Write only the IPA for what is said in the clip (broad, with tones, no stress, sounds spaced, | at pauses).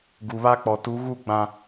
ɡ u˨ β a˦ k͡p ɔ˨ t u˨˦ ɣ u˦˨ ɡ͡b ã˦